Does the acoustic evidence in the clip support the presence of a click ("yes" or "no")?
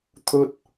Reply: no